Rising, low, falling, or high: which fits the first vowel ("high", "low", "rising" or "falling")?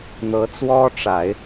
rising